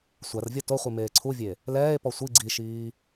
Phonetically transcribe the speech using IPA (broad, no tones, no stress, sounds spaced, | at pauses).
sʷ a r vʲ ɔ t o χʷ i m eː ǀʰ u vʲ e | l ɛː e̯ p ɔ sʷ i ɡ͡ǀ i ʃ iː